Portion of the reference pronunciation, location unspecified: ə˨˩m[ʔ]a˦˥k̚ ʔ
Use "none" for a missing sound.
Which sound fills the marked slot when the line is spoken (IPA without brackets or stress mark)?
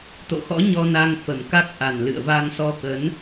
k